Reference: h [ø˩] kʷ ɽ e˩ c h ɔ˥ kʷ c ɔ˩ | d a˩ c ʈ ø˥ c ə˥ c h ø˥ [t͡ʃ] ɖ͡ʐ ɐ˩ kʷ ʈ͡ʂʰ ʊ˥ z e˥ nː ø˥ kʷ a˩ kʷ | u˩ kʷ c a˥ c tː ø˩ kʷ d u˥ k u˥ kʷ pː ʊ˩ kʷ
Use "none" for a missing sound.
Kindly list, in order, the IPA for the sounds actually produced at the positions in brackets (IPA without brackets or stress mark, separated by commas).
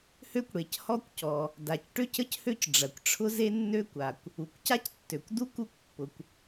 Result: ø˥, c